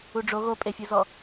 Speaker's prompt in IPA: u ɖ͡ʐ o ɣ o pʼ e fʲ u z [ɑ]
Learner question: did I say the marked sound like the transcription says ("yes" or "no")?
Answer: no